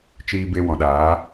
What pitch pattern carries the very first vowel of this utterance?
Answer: low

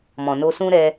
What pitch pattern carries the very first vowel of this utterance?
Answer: low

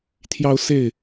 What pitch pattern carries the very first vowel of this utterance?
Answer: high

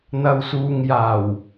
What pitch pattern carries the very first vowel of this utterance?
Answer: low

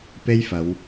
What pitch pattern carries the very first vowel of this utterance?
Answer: high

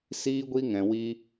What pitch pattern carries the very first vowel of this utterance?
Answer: high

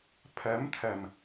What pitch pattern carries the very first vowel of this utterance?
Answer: rising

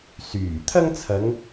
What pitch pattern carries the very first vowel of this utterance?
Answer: low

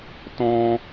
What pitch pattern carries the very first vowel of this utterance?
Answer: high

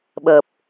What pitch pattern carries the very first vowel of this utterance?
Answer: low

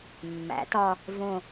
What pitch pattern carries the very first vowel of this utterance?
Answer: rising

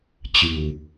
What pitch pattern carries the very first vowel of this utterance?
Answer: low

